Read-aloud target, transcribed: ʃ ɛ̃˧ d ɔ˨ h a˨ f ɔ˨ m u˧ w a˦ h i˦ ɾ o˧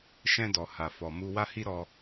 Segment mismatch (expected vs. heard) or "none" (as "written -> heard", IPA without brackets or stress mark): o˧ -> ɔ˧